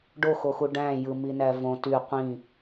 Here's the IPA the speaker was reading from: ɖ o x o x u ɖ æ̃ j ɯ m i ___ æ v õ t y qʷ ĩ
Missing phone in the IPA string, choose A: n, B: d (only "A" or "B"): A